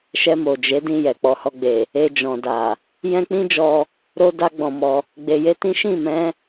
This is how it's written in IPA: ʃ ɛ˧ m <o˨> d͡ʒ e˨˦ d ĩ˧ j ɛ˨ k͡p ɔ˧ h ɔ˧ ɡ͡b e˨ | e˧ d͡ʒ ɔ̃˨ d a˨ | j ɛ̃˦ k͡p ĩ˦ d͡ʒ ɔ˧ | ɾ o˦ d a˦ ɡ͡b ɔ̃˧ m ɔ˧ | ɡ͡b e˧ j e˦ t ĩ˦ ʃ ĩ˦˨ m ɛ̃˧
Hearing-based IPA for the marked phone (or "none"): o˨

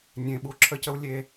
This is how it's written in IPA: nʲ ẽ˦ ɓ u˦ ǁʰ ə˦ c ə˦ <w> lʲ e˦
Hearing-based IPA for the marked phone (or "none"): w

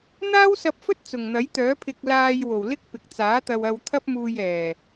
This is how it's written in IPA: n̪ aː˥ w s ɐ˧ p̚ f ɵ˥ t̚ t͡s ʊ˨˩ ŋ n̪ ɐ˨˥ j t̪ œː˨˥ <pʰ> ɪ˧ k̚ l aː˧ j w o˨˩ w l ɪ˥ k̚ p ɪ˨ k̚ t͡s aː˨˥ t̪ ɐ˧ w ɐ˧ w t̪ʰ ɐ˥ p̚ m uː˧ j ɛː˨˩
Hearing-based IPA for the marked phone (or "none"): pʰ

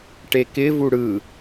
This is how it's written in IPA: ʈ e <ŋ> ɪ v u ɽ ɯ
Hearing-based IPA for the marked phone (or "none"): k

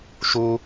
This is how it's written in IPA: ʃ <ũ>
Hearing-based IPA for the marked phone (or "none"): u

